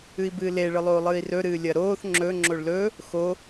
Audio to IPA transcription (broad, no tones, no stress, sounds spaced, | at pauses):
ɨ i̯ b ɨː l e ɭ ɨ lˠ oː lˠ ɨː i̯ r ɵ ɾ ɨː lʲ ɐ ɾ oː θ ŋ͡ǁ ɵ ŋ͡ǁ o ɭ l ɵ | x o